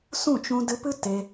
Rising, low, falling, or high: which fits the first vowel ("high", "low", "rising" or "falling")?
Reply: falling